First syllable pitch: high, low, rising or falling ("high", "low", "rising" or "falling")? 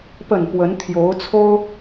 low